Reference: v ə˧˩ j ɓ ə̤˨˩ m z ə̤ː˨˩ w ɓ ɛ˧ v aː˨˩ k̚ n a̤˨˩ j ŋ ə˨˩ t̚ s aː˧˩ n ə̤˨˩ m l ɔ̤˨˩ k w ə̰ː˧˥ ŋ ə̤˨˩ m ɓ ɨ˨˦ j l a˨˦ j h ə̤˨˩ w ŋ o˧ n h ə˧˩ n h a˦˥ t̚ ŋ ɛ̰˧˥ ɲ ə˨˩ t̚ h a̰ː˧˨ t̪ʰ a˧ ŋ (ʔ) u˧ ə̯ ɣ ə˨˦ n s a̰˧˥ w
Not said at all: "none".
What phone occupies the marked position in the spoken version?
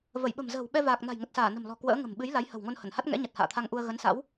ʔ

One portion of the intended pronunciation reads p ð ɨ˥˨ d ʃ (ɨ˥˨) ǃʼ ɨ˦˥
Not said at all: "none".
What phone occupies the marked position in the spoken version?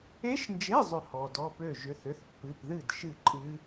ɨ˥˨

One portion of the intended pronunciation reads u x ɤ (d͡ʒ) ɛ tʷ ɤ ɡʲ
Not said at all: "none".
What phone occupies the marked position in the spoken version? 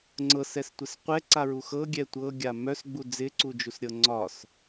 ɡʲ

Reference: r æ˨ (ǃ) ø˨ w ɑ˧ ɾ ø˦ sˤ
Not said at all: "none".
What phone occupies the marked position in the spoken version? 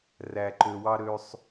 ǃ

